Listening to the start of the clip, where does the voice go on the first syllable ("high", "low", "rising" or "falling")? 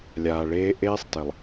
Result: low